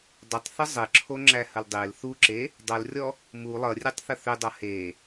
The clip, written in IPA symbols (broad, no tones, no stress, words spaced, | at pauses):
dˤʏtˤθə zˤɘǁʰoŋ͡ǁæhəl dˤel θuǁe | dˤʌlrʲɔ | mu lˠʌrʲetˤθə θʏdˤʌ he